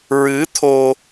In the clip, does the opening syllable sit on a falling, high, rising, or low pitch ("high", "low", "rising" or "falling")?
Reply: rising